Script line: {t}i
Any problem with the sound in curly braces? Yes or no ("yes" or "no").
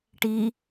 yes